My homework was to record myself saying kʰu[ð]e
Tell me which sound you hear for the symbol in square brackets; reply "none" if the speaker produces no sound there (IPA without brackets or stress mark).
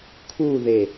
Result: ð